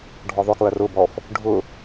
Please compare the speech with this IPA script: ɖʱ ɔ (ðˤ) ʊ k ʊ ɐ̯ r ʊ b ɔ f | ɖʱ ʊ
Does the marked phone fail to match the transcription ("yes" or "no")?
no